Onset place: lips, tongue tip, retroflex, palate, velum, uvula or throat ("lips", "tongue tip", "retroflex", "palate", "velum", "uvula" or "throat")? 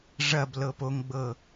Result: retroflex